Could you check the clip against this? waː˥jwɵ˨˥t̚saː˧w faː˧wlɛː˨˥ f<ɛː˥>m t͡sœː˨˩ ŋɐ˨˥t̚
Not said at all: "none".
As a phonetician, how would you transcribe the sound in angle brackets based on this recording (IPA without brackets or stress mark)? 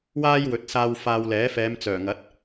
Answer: ɛː˨˧